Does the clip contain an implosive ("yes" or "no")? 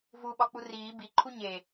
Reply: yes